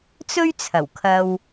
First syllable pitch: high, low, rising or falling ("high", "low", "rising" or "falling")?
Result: high